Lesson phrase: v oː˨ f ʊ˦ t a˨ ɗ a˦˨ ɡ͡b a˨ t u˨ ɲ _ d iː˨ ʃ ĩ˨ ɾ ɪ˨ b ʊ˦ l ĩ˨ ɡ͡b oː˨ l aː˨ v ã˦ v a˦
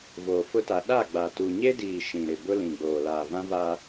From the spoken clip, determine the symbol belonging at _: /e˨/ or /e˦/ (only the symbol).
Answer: e˦